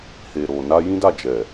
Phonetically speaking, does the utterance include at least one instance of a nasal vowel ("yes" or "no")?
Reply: yes